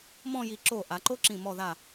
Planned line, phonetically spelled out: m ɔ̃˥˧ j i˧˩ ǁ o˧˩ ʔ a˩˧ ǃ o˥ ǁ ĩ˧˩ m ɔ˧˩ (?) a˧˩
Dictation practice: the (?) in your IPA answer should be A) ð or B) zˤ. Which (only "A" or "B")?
A